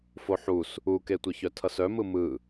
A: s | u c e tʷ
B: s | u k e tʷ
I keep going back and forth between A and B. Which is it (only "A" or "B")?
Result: B